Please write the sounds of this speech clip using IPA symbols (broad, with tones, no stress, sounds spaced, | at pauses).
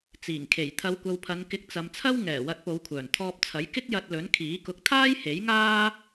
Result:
t͡s iː˨˩ ŋ kʰ e˨˩ j t̪ʰ ɐ˨˧ w kʷ ɐ˨ w pʰ ɐ˨˧ n k ɪ˨˥ k̚ t͡s ɐ˨ m t͡sʰ ɐ˥ w ŋ ɛː˨˩ w ɐ˧ t̚ p o˨˧ w kʷʰ œː˨˩ n t̪ʰ ɔː˧ p̚ t͡sʰ ɐ˨˥ j k ɪ˥ k̚ j ɐ˧ t̚ l ɵ˨˥ n kʰ iː˨˥ k ʊ˧ k̚ t̪ʰ aː˥ j h e˨˥ j ŋ aː˥